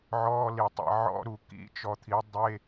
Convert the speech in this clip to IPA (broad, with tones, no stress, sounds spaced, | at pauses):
ʕ ɔː˧˥˧ l i˨ tˤ ḭ˨ ʕ ɔ̰˧˥˧ ɾ u˨ k ḭ˧˥˧ t͡ʃ ɔ˨ t̪ʰ i˨˦ dˤ e˧˥˧